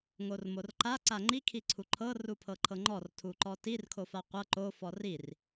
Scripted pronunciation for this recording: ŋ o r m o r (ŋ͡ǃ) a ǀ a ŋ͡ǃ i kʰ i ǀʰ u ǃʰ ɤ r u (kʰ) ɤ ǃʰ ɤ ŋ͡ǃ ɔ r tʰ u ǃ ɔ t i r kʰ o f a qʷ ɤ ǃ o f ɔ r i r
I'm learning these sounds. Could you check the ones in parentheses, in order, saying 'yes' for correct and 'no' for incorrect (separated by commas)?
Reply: no, no